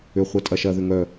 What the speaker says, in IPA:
ʏ χʷ ɛ tʼ ɐ ʃ ɐ ð ʏ ŋ œ

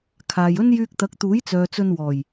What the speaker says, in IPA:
kʰ aː˨ j ɵ˥ n j yː˧ k̚ t̪ ɐ˨˥ k̚ t̪ uː˨˥ j t͡s œː˨ t͡s ɵ˧ n w ɔː˨˩ j

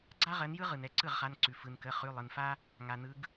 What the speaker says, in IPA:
ɡ͡ǀ a˥ ʁ ɜ˨˦ n j ɯ˥ ʁ ɯ˩ n ɛ˨˦ ǀ ɯ˥˩ ʁ χ a˩˧˩ n ǀ ʉ˩ f ɯ˩ n k ə˩˧˩ χ ʉ˩˧˩ lˠ ɯ˩ n f a˥ | ŋ a˩ n ɯ˨˦ ɡ

